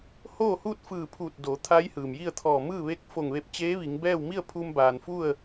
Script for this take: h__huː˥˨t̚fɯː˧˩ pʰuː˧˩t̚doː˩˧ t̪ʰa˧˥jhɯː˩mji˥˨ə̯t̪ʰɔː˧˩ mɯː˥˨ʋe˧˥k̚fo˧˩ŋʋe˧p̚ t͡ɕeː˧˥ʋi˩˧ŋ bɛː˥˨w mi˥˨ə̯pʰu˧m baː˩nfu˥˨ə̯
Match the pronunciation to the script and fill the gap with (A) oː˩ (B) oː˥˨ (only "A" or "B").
B